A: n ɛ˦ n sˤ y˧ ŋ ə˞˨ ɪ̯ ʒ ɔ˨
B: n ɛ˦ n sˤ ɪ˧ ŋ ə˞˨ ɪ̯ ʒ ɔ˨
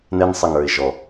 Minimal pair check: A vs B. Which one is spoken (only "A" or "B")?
B